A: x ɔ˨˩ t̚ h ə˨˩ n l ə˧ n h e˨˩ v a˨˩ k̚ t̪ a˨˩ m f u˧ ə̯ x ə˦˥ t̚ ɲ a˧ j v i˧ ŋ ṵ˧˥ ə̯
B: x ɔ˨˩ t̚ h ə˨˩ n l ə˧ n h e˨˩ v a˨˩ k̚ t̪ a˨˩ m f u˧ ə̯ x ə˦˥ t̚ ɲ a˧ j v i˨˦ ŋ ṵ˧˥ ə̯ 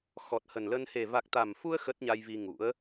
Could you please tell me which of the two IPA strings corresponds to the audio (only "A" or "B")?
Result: A